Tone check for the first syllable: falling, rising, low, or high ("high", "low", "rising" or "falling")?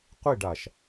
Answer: falling